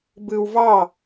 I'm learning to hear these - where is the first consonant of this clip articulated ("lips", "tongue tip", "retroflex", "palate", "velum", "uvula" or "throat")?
lips